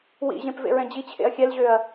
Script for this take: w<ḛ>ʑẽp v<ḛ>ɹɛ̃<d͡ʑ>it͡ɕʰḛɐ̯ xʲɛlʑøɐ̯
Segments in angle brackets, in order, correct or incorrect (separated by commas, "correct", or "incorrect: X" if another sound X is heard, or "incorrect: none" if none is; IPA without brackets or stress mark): incorrect: ḭ, correct, correct